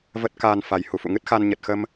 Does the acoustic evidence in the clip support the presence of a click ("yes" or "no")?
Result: no